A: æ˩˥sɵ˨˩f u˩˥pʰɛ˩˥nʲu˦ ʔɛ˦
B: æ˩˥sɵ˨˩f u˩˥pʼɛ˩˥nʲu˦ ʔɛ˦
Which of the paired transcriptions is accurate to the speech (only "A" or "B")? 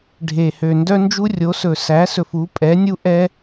B